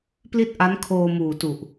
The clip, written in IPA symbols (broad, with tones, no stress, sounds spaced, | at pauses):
p l i˥˩ t̚ ʔ a˦˥ n kʰ oː˧ m uː˨˩ t u˨˩ ʔ